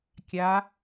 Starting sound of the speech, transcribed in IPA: kʲ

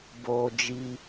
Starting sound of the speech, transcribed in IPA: b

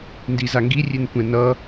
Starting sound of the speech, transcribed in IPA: n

